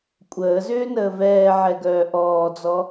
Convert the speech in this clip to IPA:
kʷʼ əː z ʏː n əː v ɛː ʕ ɛ ɡ œː ʔ ɔː d͡z ɔ

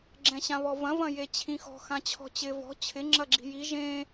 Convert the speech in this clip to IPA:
ɡ͡ǁ ɛ̃ ɕ ã β ɔ v ɐ̃ v ɐ̃ j e t͡ɕʰ ĩ x ɔ̤ x ã t͡ɕʰ ɔ̤ t͡ɕ ɪ v ɔ̤ t͡ɕʰ ɪ ŋ͡ǁ ɐ ɡ͡ǁ i̤ j i ʒ ẽ

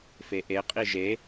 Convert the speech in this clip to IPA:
f e ʔ e qʼ i ʒ e

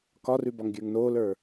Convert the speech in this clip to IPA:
k ɒ r ʉ b ɒ ŋ ɡʲ ə˞ ŋ n oː l ə˞

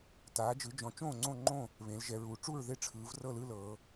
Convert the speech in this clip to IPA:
t aː˩˧ d͡ʒ ɯ˩˧ d͡ʒ ɔ̃˩˧ t͡ʃ õː˥˨ ŋ͡ǀ õ˥˨ ŋ͡ǃ õ˥˨ | β ẽ˩˧ l ʒ ɛ˩˧ ɹ uː˩˧ ʈ͡ʂ u˥˨ ɹ ð e˥˨ ʈ͡ʂʰ ɯː˩˧ v r ɤ˥˨ l ɯː˥˨ l ɤ˩˧

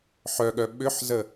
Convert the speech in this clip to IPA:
ħ œ ɠ œ ɓ ʏ ħ z ə

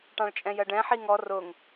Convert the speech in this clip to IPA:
ʈ ɑ̃ ɭ t͡ʃʼ ɛ̃ j ɜ ɖ ɛ̃ ħ i ŋ ɔ r ʊ ŋ

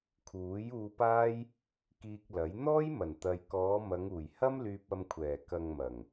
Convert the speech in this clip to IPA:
kʰ uː˨˥ j uː˧ p aː˥ j | k iː˧ k̚ l ɐ˨˥ j n̪ ɔː˥ j m ɐ˨˩ n t̪ ɐ˨ j k ɔː˨˧ m ɐ˨˧ ŋ uː˨˩ j h ɐ˥ m l yː˧ p̚ ɐ˧ m kʷʰ ɛː˨˩ k ɐ˨ ŋ m ɐ˨˩ ŋ

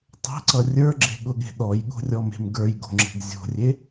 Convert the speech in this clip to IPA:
tˤ e̤ ǀ ʌ rʲ ə˞ ɡ͡ǁ e̤ ɠ ʊ ɠ e̤ ɗ ɔ j ɠ o̤ rʲ ɔ m e̤ m ɡ ə˞ j ɡ o̤ ŋ͡ǁ e̤ ɡ zʲ o̤ rʲ e

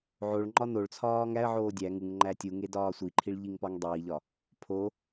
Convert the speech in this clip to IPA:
ʕ o ɭ ŋ͡ǃ ɒ n o ɭ t͡sʰ ɒː ŋ æ ə̯ ʕ oː dʲ æ ŋ u ŋ ŋ͡ǃ æ tʲ u ŋ e d ɒː sʷ i ǃʰ i ɭ ʎ i ŋ p ɒ ŋ dˤ iː ʎ ɒ | pʰ o

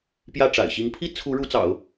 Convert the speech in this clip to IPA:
p j ä˥˩ ʈ͡ʂ a̰˨˩ ɪ̯ ɕ i˧˥ ŋ pʰ i˥ t͡sʰ u˧˥ ɻ u˧˥ t͡s ɑ̰˨˩˦ ʊ̯

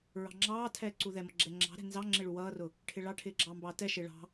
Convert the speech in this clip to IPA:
ɹ ɑ̤ ŋ͡ǁ ɑː tʰ ɛː ǀ u ð ɛ m ʌ ɡ͡ǁ ɛ ŋ͡ǁ ɑ̤ ɾ ɛ̤ n z ɑ ŋ͡ǁ ɪ ɭ u w ʌː r ʊ | ʈʰ ɪ ɭ ɑ ʈʰ ɪː ɡ͡ǁ ɑː m b ɑː t ɛ ʃ ɪː ɭ ɑ̤

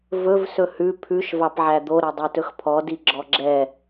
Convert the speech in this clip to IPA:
v ɵ v s ɵ h ʉ pʰ ʉ ʃ v ɑ p ʕ æ d̪ o ɾ ɛ dˤ ɛ t ɵ x pʰ ɔ d i ɡ͡ǁ ɔ ɡ͡ǁ ɛ

